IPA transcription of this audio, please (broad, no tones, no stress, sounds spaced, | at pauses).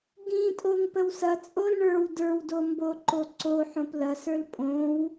ɡ ĩ tʼ o ŋ p ə w s ɐ t͡sʼ o l ɳ ə˞ w d ə˞ w d o m b o ǃ o ǀ o ħ õ p l ɐ s ə˞ l pʼ õ w